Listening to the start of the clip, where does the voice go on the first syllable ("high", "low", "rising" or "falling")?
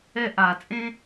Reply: high